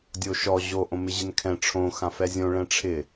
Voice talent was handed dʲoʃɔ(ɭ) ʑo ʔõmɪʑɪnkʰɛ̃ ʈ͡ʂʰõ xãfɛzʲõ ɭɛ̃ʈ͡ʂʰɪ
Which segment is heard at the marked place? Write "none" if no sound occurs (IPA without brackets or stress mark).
none